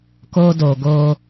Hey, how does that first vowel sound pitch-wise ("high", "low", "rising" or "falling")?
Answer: high